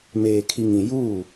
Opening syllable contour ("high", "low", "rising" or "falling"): low